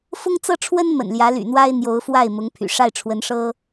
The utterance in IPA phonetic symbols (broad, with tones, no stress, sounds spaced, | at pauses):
f ʊ˥ ŋ t͡s ɤ˥ ʈ͡ʂʰ w ə˥ n m ə̰˨˩ n l j ä˧˥ l y̰˨˩ n̪ w a˥ ɪ̯ n̪ j o˧˥ ʊ̯ f w a˥˩ ɪ̯ m ʊ˧˥ ŋ pʰ y̰˨˩ ʂ a˥˩ ɪ̯ ʈ͡ʂʰ w ə˧˥ n ʂ ɤ˥